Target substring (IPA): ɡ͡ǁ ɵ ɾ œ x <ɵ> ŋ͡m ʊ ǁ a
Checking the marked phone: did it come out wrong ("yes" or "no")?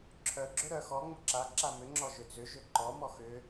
yes